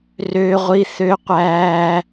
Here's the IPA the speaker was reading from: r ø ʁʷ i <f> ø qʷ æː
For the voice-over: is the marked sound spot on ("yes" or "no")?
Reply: no